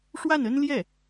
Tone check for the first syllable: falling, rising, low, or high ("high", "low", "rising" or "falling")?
falling